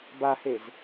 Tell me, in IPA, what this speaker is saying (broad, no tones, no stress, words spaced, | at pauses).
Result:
bahez